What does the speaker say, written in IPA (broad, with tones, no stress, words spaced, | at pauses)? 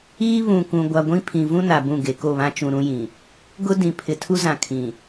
iː˦βũ˨ kũ˨ɡʷa˨ɡʷĩ˦ pʰĩ˨vũ˦ na˨bũ˦˨ ɡe˨ko˦˨βã˦ t͡ʃũ˨ɾũ˦jĩ˨ | ɡʊ˦dĩ˨ pʰɪ˨tʰu˦zã˨kʰĩ˨